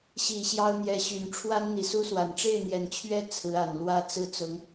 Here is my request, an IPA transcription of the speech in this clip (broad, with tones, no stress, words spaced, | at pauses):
ɕi˨˩ ɕjɑ˥ʊ̯n̪jɛ˧˥ɕy˨˩n ʈ͡ʂʰwa˥nn̪i˨˩su˥swa˨˩n ʈ͡ʂe˥˩ɪ̯n̪jɛ˨˩nt͡ɕʰɥɛ˥ t͡sʰɹ̩˧˥a˨˩n lwä˥˧ t͡sɹ̩˥˩t͡sʊ˧˥ŋ